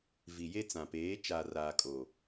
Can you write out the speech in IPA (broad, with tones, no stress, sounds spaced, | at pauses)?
v i˨ j e˦ t͡s ã˨ p eː˨˦ t͡ʃ a˨ r aː˨ kʼ o˨